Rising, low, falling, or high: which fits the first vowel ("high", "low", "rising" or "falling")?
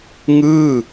falling